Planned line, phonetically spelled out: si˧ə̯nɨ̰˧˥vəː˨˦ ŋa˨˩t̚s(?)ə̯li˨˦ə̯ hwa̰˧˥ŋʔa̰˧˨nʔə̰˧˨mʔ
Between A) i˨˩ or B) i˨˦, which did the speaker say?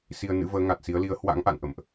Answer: B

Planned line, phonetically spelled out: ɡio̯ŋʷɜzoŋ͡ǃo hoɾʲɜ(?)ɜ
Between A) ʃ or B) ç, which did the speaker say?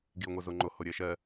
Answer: A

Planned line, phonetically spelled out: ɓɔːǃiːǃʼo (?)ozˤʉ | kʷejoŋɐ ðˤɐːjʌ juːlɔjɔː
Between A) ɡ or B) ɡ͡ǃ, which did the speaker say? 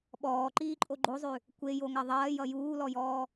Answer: B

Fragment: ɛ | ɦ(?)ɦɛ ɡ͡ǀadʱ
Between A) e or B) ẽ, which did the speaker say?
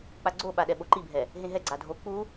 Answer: B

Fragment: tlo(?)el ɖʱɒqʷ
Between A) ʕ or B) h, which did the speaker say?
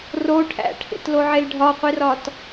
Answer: A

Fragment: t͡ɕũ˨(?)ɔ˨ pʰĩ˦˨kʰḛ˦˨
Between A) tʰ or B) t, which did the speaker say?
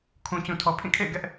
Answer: A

